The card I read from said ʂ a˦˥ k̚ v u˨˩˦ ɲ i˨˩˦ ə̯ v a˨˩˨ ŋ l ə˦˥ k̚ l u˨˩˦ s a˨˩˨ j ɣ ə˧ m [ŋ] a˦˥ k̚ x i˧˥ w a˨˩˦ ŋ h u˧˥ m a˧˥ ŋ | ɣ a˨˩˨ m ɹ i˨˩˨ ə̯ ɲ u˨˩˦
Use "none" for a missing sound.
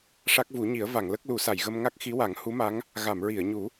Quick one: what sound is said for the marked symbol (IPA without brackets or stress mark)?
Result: ŋ